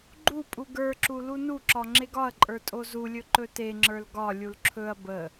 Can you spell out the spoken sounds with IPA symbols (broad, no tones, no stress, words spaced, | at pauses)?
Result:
ɡ͡ǃupʼu ɡə˞ǁu lunuǁɒ ŋ͡ǁeɡɒɐ̯ǃʼə˞ tʼozulʲɵ ǃɵteŋ͡ǁə˞l ɡɒlʲul ǁʰɵɐ̯ bə